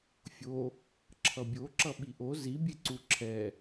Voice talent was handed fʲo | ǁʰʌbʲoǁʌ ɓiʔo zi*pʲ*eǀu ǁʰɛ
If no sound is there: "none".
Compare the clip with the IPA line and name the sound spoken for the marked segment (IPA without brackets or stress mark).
bʲ